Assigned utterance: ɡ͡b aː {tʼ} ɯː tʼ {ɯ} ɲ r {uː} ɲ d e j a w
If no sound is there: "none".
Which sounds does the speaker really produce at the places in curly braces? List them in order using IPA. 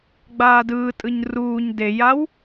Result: d, ɯ, uː

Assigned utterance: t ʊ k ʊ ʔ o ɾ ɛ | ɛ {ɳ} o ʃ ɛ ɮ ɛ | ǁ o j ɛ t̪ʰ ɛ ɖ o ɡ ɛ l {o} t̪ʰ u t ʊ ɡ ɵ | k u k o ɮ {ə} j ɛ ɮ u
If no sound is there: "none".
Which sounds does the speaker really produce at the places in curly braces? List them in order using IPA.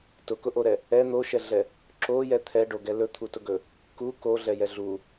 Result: n̪, ɵ, ɛ

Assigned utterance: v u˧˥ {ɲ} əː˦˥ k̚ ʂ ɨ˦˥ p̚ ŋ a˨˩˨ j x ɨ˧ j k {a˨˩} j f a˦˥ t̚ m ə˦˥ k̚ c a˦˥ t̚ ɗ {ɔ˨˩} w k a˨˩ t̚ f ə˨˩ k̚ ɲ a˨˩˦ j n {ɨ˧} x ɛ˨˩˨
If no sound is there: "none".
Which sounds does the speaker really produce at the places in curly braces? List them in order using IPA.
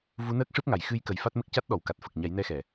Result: n, ə˨˩, ɔ˨˩˨, ɛ˧

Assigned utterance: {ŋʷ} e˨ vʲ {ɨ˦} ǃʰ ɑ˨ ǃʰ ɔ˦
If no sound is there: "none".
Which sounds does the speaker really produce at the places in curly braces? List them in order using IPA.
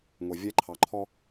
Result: ŋʷ, ɛ˦

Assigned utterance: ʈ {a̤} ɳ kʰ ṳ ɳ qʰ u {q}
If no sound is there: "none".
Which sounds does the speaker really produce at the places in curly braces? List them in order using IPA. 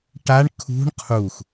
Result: a, x

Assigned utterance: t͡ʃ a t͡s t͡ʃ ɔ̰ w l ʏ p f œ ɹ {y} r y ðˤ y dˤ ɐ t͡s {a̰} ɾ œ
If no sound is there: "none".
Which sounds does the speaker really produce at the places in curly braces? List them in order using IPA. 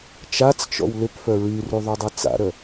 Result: y, a̰

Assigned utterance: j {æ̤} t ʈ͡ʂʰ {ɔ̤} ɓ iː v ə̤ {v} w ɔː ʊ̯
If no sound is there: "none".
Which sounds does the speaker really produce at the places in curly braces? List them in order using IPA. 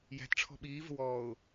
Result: æ̤, ɔ̤, none

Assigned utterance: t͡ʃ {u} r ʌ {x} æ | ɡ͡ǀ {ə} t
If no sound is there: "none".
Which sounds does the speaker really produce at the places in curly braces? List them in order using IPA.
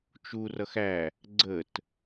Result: u, x, ə

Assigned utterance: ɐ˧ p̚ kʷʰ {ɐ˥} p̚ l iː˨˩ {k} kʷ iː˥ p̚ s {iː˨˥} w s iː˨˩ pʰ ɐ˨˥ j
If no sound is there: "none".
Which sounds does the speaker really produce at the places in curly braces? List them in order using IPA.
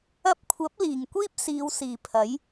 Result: ɐ˨˥, ŋ, iː˨˧

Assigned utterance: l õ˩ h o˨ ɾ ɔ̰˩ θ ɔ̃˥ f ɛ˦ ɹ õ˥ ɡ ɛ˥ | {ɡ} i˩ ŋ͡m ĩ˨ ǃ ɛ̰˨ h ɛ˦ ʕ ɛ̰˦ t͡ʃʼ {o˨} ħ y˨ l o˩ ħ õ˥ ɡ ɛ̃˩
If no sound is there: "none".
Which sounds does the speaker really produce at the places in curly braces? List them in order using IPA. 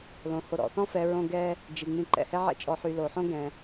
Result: d͡ʒ, ɔ˨

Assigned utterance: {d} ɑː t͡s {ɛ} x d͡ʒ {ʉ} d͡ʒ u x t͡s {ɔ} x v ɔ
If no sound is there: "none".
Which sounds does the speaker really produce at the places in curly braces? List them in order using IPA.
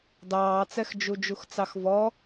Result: d, ɛ, u, ɑ

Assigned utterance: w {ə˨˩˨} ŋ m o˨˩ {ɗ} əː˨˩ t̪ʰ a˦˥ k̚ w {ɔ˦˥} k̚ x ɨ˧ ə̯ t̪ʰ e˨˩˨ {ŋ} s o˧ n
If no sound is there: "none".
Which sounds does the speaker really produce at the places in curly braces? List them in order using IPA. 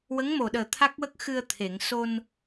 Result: ə˧˥, ɗ, ə˦˥, ŋ

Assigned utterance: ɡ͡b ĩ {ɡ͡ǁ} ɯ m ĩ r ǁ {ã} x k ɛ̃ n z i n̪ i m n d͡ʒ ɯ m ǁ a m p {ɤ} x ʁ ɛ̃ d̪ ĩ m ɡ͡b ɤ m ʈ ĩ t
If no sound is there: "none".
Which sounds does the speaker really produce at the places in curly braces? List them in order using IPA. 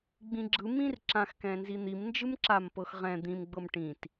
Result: ɡ͡ǁ, ã, ɤ

